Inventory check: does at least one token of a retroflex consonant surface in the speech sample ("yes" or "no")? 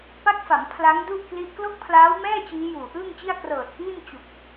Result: no